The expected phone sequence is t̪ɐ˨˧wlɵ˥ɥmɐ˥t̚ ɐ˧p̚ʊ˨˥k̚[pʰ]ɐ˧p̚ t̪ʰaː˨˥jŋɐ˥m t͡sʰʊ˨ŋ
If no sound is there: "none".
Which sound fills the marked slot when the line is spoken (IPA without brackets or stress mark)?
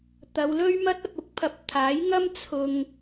pʰ